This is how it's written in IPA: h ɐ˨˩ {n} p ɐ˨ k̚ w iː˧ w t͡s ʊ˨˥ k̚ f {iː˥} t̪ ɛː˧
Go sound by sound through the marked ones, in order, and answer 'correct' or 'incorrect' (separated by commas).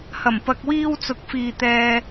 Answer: incorrect, incorrect